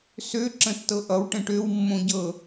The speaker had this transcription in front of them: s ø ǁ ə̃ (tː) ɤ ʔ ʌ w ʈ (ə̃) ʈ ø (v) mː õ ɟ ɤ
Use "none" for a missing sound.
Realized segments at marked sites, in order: tː, ə̃, w

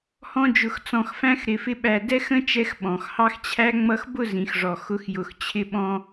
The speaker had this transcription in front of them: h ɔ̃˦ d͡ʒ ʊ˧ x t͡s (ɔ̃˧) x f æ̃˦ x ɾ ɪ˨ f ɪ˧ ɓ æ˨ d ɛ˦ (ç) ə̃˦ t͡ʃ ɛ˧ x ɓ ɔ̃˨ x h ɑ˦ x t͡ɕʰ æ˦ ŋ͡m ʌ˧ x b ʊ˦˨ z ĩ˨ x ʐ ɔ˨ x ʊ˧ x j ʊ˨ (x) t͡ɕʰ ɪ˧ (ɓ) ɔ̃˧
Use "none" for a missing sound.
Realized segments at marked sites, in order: ɔ̃˧, x, x, ɓ

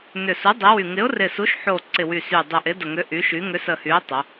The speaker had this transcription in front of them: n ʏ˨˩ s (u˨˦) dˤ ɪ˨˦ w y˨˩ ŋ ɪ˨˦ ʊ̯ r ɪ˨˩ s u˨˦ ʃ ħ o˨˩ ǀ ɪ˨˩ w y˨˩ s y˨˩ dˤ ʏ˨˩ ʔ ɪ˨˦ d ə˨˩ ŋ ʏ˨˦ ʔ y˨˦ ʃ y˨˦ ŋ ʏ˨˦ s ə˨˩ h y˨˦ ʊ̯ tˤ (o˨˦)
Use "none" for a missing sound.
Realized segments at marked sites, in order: u˨˦, o˨˦

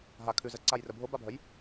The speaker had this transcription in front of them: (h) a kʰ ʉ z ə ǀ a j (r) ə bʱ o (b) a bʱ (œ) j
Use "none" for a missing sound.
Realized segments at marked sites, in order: ɦ, r, b, œ

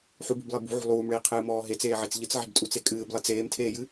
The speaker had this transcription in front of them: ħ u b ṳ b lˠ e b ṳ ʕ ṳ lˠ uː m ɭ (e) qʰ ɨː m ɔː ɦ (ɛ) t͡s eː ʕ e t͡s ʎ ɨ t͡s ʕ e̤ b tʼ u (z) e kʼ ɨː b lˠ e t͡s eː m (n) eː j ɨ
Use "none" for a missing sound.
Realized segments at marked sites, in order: eː, e, t͡s, tʰ

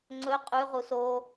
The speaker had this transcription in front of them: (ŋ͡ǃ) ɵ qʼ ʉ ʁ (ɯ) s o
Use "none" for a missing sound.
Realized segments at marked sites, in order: ŋ͡ǀ, u

